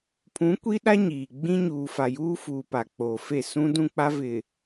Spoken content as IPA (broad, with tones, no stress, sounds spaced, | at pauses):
pʰ ũ˨˦ kʷ i˦ ɗ a˦ ɲ iː˨ ɡ͡b ĩ˦ ɲ uː˨ f a˨ j uː˦ f uː˨ p a˨ k͡p oː˨ f e˦˨ s ũ˦ d ũ˦ k͡p a˦ v ɪ˨